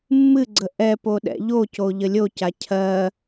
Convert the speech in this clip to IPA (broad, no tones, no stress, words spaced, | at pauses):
mːɨɡ͡ǀə ʔɛpo ɗɛ̰ʎoco ʎəlʲoca cʰɜ